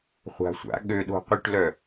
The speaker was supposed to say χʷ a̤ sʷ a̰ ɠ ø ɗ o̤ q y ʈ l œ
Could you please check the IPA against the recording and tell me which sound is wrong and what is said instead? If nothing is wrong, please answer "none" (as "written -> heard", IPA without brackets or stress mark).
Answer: none